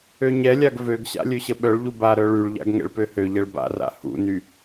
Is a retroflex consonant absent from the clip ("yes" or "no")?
no